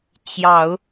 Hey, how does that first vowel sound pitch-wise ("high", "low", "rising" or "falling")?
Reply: low